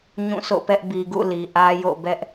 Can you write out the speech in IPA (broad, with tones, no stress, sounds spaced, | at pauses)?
ɲ ũ˦˨ sʰ o̰˦˨ p ɛ˦ ʔ b i˨ ɡ ṵ˦˨ l i˨ ʔ ä˦ j o̰˦˨ b ɛ˦ ʔ